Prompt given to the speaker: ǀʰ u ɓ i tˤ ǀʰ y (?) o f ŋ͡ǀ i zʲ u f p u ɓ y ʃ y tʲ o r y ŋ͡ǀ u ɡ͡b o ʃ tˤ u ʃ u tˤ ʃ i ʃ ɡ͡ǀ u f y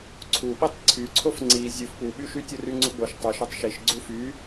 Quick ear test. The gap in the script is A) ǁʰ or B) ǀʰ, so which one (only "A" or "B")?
B